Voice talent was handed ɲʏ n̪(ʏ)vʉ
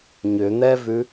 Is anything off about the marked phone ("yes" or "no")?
yes